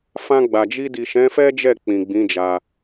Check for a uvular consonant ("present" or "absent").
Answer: absent